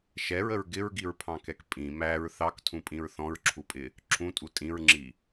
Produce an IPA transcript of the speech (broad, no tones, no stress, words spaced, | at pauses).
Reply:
ʃɛɹəɹ ɡɪɹɡiɹpʰɑ̃kɛk pʼĩ mæɹ θɑktʰũpʼĩɹ θɔ̃ɹǁʰupʼɪ | ǁʰũtʼu tʼĩɹŋ͡ǁi